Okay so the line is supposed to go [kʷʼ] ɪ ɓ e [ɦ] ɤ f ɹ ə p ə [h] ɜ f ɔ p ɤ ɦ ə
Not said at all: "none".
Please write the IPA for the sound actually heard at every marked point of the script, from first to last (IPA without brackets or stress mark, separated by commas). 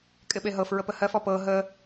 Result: kʼ, ɦ, h